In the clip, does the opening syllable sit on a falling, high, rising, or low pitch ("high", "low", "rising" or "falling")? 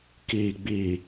low